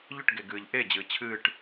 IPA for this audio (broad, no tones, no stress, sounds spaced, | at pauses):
ʎ ʏ ʈ ɡ e ɡ ɨː ʎ ʔ e d͡ʑ ɨː t͡ɕʰ ɨː ʈ